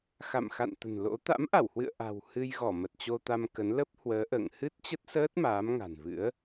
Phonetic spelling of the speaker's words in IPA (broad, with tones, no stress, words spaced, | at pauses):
xa̰˧˨mxa̰˧˨n t̪ə̤˨˩nlo̰˧˥ t̪a̰˧˥mʔa˧˩whwɨ̰˧˨ə̯ ʔa̤˨˩w hɨ˧jɣɔ˧˩ mə˨˩t̚t͡ɕo˧ t̪a˧m kə˨˦n lə˦˥p̚hwəː˨˦ʔə̰ː˧˨ŋ hɨ˦˥t̚t͡ɕə˦˥t̚səː˦˥t̚ maː˨˦mŋa̤˨˩nvɨ̰˧˥ə̯